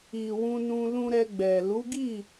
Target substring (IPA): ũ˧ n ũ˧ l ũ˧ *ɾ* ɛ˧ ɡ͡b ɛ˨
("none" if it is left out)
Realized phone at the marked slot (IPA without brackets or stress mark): ɾ